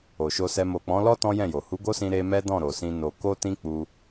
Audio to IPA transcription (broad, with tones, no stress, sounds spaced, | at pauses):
o˨ ʃ o˧ s ɛ˧ m o˨ k͡p ɔ̃˨˦ l ɔ˦ t ɔ̃˦ j ɛ̃˦˨ j o˨ h u˨˦ ɡ o˦ s ĩ˧ ɾ e˧ m ɛ˦ d ɔ̃˦˨ ɾ o˨ s ĩ˧ n o˧ k o˦ t ĩ˦ k͡p u˧